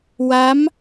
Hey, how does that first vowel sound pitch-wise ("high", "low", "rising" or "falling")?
rising